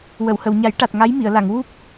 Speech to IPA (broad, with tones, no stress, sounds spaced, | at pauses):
w ə˨˩˨ w h ə˨˩˨ w ɲ a˨˩˦ j ʈ a˨˩ t̚ ŋ a˧˥ j m i˨˩˨ ə̯ l a˨˩˨ ŋ w u˦˥ p̚